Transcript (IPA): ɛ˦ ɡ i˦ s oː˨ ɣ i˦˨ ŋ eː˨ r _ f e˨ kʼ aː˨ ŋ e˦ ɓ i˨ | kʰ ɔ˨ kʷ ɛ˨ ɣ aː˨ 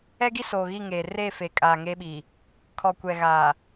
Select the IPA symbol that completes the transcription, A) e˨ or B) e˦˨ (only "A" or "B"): B